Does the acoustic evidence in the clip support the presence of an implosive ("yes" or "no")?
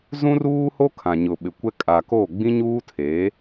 yes